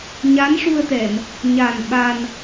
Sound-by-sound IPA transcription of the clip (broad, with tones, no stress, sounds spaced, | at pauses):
ɲ a˧˥ n ʂ u˧ ə̯ t̪ ɛ˨˩˨ m | ɲ a˨˩ n ɓ a˧ n